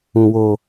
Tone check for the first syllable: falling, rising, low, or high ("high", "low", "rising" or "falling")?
low